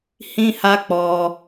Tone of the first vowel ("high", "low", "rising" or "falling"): high